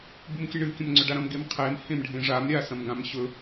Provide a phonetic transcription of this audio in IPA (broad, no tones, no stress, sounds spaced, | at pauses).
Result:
b u m kʲ ɨ ɳ ɨ kʲ ɐ̃ m ŋ͡ǀ ɵ ɖ a ɾ ɐ̃ m ɡ e m qʰ e m h ẽ m ɖʱ ẽ ʐ a m ɾʲ a s ɐ̃ m ɡ ã m ɕ ɵ